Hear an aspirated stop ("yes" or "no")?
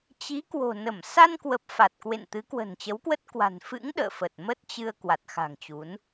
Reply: no